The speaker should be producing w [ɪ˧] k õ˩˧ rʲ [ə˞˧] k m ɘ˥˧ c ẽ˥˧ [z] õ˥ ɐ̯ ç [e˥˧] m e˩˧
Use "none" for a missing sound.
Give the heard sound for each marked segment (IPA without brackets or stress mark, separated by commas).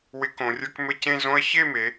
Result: ɪ˧, ə˞˧, z, e˥˧